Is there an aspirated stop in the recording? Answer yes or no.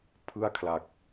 yes